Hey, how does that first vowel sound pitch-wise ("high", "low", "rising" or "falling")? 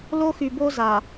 high